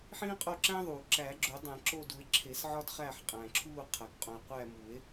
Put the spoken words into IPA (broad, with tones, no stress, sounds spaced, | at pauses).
ħ ĩː˦ qʼ o˦˨ ǁ æ̃˦ ðˤ uː˩ ǁ æ˨˩˦ ɡ͡ǁ o˨˩˦ dˤ æ̃˨˩˦ ǁ o˦˨ d u˨˩˦ e̯ ǁʰ e˨˩˦ s ʕ ɒ˦ d χ æː˦˨ ħ qʼ æ̃˩ ǁʰ uː˦˨ qʰ æ˩ k qʼ ũ˩ e̯ qʷ æː˦˨ m u˨˩˦ e̯